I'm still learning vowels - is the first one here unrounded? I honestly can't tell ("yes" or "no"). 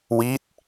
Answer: yes